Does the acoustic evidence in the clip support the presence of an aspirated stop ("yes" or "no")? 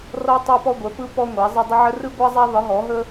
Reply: no